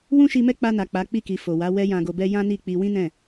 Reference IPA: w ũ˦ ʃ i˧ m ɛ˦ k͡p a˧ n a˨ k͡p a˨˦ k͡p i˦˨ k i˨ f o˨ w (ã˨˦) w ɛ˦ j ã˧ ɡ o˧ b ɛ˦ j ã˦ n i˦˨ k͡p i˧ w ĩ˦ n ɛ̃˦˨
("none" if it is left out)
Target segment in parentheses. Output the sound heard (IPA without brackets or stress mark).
a˨˦